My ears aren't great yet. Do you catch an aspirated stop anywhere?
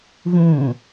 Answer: no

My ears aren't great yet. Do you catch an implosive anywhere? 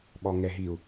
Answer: yes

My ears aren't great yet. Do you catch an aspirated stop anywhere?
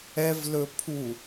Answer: yes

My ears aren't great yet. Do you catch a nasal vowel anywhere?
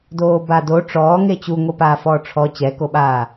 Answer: no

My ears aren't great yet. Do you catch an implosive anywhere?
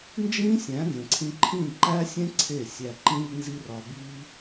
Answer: no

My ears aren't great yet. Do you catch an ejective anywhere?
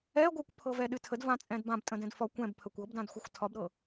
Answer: yes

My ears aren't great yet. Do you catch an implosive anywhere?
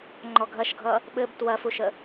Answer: yes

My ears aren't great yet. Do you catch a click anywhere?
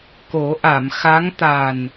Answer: no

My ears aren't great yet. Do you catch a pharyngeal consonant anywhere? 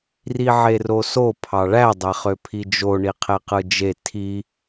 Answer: yes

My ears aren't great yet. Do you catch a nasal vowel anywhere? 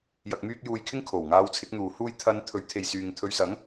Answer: no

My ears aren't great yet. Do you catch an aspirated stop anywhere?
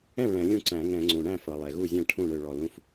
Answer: yes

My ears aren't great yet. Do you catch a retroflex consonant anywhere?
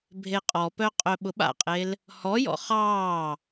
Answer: no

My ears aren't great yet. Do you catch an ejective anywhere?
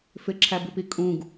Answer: yes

